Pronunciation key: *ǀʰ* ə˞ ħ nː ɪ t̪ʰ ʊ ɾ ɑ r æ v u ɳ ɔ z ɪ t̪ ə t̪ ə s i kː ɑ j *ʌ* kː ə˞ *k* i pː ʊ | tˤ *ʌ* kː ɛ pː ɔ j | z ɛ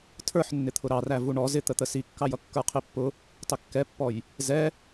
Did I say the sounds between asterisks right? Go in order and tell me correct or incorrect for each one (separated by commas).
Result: incorrect, correct, incorrect, incorrect